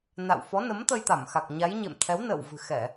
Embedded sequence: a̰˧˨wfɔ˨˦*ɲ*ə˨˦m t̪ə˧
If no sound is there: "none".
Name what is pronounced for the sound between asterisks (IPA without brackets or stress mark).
n